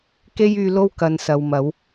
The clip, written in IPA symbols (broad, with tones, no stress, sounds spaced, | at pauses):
k e˥ j yː˧ l o˥ w k ɐ˧ n s ɐ˨ w m ɐ˨˥ w